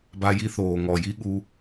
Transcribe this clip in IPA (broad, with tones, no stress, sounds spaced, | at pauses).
b a˦ j i˦ θ oː˨ ŋ ɔ˨ j i˦ ɠ u˧